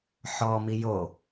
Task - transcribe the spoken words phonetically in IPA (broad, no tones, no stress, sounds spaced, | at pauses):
ħ ɔ m i j o